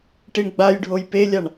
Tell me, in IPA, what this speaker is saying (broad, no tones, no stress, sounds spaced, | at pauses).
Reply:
ʈ i ɳ ɡ͡b a j ɖʱ o j p e lʲ a ɳ